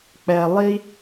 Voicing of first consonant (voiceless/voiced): voiceless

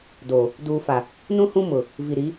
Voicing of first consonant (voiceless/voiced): voiced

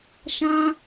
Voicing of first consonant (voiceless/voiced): voiceless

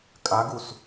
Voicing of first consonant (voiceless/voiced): voiceless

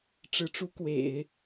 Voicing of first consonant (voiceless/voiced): voiceless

